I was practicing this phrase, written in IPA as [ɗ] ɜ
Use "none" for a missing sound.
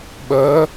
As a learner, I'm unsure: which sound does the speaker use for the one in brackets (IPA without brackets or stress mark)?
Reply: ɓ